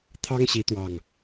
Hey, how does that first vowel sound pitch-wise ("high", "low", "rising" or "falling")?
high